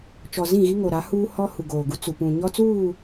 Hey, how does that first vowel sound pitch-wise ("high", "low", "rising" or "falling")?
low